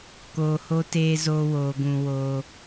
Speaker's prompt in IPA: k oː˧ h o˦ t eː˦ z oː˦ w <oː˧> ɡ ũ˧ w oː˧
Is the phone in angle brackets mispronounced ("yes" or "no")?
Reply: no